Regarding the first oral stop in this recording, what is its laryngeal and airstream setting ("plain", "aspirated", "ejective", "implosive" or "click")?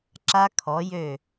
click